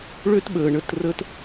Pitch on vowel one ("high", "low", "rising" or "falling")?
high